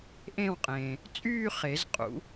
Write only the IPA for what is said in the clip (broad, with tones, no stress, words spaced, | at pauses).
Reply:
ʔẽː˥˧w qʼẽː˩ | t͡sʼyː˥˧ χe˨˩˦zqʼṵ˨˩˦